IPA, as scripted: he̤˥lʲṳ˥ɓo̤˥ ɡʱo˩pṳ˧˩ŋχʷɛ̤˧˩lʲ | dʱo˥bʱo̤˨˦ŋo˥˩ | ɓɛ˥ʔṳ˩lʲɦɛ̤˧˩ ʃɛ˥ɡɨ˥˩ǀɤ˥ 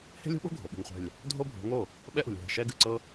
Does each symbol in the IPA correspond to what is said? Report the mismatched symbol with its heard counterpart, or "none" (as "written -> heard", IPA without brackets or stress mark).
p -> ɓ